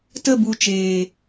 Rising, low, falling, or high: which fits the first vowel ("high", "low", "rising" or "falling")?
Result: falling